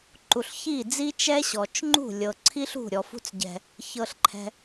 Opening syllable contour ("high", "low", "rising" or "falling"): low